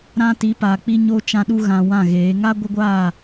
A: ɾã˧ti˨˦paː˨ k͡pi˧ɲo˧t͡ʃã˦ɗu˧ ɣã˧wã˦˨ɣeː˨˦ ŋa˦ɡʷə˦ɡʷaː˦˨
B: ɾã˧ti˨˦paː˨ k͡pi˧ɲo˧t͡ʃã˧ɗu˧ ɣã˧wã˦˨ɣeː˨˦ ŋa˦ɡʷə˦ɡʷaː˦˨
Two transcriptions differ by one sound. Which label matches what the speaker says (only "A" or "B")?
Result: B